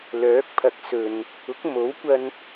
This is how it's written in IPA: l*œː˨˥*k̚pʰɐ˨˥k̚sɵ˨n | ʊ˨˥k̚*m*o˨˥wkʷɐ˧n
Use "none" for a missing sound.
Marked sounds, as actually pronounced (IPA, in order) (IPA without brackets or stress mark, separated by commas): œː˨˥, m